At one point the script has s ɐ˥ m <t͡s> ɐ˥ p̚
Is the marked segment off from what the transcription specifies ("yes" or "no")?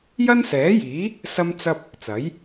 no